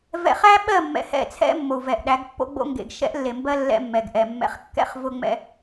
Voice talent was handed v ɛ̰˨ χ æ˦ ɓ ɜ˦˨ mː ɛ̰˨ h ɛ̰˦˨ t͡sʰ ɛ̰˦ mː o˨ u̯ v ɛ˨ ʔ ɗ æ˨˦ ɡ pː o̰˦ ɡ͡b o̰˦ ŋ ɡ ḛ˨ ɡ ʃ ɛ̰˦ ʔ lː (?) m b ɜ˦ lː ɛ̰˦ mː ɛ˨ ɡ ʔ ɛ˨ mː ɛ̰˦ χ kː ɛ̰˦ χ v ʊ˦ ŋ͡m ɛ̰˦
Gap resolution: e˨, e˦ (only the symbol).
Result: e˨